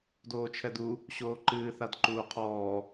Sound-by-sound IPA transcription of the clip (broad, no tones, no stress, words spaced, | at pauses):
doːt͡ʃʰɛdu | ɕoːǃɨː θadǃuːqʰɔː